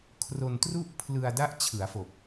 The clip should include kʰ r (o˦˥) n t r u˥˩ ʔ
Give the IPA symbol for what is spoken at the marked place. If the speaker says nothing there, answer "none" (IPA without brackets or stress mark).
o˧